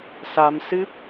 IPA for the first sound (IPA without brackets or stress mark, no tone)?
s